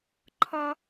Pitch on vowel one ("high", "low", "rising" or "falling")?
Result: high